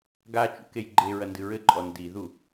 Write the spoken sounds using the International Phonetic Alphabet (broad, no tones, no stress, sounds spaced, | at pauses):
ɡ a t͡ʃ ṵ k e j ɡ͡ǃ e ɹ ɐ n d ɨ ɹ ɘ ǃʼ ɔ n d i ð u